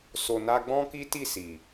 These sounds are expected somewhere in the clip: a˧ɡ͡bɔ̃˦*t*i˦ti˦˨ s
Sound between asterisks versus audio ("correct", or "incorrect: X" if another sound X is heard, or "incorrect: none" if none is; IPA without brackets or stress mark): incorrect: k